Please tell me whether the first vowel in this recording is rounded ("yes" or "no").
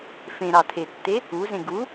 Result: no